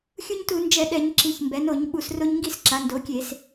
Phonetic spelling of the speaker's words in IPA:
xʲ u˦ ɲ t u˧˩˧ n d͡ʒ ɛ˧˩˧ ɗ ɛ˧˩˧ ɲ ǁ i˩˧ ç m b ɛ˩˧ n o˧˩˧ ɲ ɓ u˧˩˧ s r o˦ ɲ ŋ ɡ i˥˨ s ǁ a˩˧ n d o˩˥ kʲ e˧˩˧ s

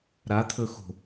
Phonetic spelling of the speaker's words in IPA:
ɾ a t̪ʰ ɵ x o̤

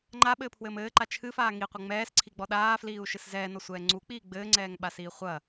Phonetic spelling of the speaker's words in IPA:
ŋ͡ǃ a ɓ ɘː pʰ w ɘː m ɘː ǃ a t͡ʃʰ ɨ f aː ŋ i qʷ ɘ ŋ͡m ɛː s ǀʰ i ɡ͡b ɔ ɗ aː f l iː u̯ ʃ ɨ s z ɛː n ɔ sʷ ɛː ŋ͡ǀ u k͡p iː ɡ͡b ɘː ŋ͡ǀ ɛː ŋ ɓ a s iː χʷ ɐ

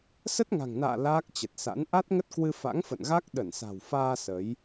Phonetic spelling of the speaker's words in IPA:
s ə˦˥ t̚ ŋ a̤˨˩ ŋ n a̰ː˧˨ l aː˦˥ k̚ t͡ɕ ə˨˩ t̚ s a̰˧˥ n ʔ a˦˥ t̚ ŋ ə˦˥ t̚ k w ɨ˧ f a̰˧˥ ŋ f ə̰˧˨ n ɣ a˦˥ k̚ ɗ ə˧˩ n s a̤˨˩ w f aː˧ s ə˨˦ j

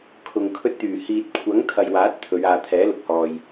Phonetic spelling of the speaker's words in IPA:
kʰ ʊ˨ ŋ kʰ ɵ˧ t̚ t̪ yː˨˩ h iː˨ t̚ kʷʰ ɐ˨˥ ŋ t̪ʰ ɐ˨ j w aː˨˥ t̚ t̪ʰ ɵ˨˧ ɥ aː˨ t̪ʰ ɛː˨˥ l ʊ˨ k̚ h ɔː˨ j

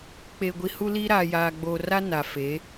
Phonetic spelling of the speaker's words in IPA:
k͡p e˨ ɡʷ i˨ h u˦ l i˦ ɾ aː˨ j aː˨ ɡ͡b oː˨ r a˦ n a˨ f e˨˦

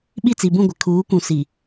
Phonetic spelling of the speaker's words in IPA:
ɓ i˦˨ t͡s i˨ b ũ˦˨ ɡʷ ɪ˨ kʰ uː˨˦ kʷ ũ˨ s i˨

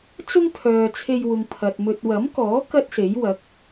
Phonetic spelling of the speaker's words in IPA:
t͡s ʊ˥ ŋ pʰ œː˨ t͡sʰ e˧ j w ʊ˨ ŋ pʰ ɐ˨ t̚ m ɵ˨ t̚ w ɐ˨˥ m k ɔː˨˥ k ɐ˥ t̚ s e˨˥ j w ɐ˨˥ k̚

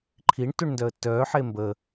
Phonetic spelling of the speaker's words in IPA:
ǃʰ i ɳ t u ɳ n d œ ə̯ tː œː ħ e m b ə

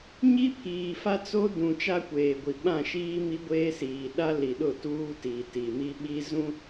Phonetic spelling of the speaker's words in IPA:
ɲ i˦ pʰ iː˨ f a˦ t͡s o˦ d ũ˨ t͡ʃ a˦ kʷ eː˨ ɡʷ i˨ ɓ ã˦˨ ʃ iː˦ m i˦ ɡʷ eː˦ s iː˨ ɗ a˦ l i˨ ɗ ʊ˦˨ t uː˦ t i˨ t i˨ m i˦ ɓ i˦ z ũ˦

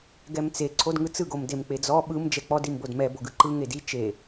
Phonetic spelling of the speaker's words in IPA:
ɡ ɛ m t͡s e ǀʰ o d ŋ ɯ t͡s ɯ ɡ o m d e m k͡p e d͡z ɔ ɓ ɯ m d͡ʒ ɛ k͡p ɔ d i m b o d m ɛ b o ɡ ɯ ǃ ɯ ŋ e d i t͡ʃ e

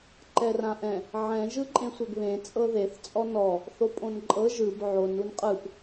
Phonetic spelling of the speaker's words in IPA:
ǃ ɛ r ã ʔ ɛ̃ | ʕ ɛ̃ ʒ ɯ ǃʼ ẽ sʷ ɛ ɡ β ẽ t͡sʼ ɤ ð e θ t͡sʼ ɔ n ɔ | θ o pʼ õ n ǃʼ ɤ ʒ ɯ b ʕ o n u n qʼ ɯ p

